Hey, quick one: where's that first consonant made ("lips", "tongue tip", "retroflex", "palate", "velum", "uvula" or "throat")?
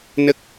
tongue tip